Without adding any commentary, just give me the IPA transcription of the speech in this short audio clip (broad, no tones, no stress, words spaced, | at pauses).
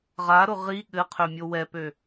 ʁaɾʊ ʁi ɠɘqʰø mʲowɛpø